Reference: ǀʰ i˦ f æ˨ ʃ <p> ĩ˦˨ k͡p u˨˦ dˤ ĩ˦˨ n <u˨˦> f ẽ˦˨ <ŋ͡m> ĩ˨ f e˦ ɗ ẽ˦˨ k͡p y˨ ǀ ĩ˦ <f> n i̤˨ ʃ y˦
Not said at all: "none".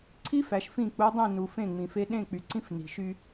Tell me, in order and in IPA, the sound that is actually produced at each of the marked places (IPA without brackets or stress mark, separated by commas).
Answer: f, u˨, ŋ͡m, f